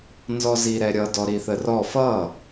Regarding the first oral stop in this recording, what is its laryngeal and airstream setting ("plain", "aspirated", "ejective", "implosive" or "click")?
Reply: plain